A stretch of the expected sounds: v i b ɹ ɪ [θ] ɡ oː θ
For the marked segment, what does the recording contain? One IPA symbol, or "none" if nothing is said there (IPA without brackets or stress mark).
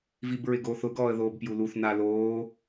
none